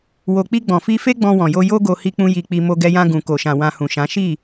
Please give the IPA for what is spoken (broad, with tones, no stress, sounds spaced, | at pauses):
w o˧ k͡p i˧ ɡ͡b ɔ̃˨ f i˧ f e˦ ɡ͡b ɔ̃˧ w ɔ̃˨ j o˧ j o˦ ɡ o˧ h i˧ k͡p ũ˧ j i˧ k͡p i˧ m o˧ ɡ ɛ˧ j ã˧ ɡ ũ˨ k o˨ ʃ ã˨ w ã˧ h ũ˨ ʃ ã˨˦ ʃ i˦˨